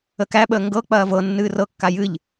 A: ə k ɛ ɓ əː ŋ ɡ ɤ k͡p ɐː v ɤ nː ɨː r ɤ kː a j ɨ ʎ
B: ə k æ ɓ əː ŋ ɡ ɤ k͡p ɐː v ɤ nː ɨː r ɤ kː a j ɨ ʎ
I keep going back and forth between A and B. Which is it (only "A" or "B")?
B